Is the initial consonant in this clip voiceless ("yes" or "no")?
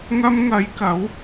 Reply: no